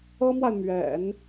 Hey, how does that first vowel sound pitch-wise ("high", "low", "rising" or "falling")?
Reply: high